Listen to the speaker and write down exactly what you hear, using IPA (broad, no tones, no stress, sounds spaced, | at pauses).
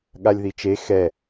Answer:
ɠ a lʲ ð i t͡ʃ e x ɛ